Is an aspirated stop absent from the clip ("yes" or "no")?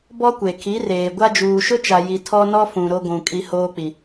no